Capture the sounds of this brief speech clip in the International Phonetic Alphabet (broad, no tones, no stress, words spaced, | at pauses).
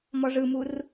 mɔʐɯmur